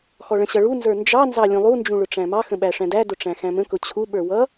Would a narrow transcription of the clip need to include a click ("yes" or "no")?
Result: no